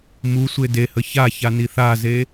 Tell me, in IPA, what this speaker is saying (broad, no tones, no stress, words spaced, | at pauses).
musʷe dehə çaça niθaze